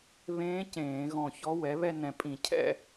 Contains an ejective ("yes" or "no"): yes